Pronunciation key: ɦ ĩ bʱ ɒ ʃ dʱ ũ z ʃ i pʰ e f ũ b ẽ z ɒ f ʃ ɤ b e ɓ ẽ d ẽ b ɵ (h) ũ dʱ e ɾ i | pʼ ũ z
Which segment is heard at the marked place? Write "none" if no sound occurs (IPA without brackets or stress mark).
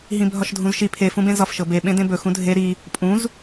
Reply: x